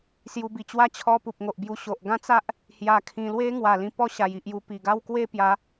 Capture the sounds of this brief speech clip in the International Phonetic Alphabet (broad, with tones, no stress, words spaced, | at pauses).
sju˧bi˧t͡ɕwa˦ t͡ɕʰɔ˧pu˨p̚ŋo˨ʔbju˧ ɕo˨ʔ ɡã˦t͡sa˦ʔ | hja˧kʰĩ˧ lwe˦ŋwa˨˩ lĩ˧pɔ˥˧ɕa˨˩j i˨ʔju˧pi˨˩ ɡa˥˧wkwe˥˧pja˨˦